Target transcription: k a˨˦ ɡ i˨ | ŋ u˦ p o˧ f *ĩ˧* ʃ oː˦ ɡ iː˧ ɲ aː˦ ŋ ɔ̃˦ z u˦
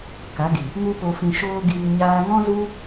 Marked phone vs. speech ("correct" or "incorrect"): correct